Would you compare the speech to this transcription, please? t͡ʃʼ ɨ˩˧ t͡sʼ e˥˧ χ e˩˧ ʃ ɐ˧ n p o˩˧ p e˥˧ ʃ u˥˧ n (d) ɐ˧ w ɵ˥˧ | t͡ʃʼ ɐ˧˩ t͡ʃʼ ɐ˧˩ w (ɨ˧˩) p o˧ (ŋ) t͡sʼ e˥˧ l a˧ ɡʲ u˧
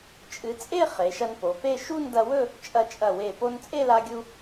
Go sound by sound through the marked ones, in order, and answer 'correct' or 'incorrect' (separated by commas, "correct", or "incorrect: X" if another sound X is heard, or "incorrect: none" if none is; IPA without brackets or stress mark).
correct, incorrect: e˧˩, incorrect: n